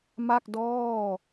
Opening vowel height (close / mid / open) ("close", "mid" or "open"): open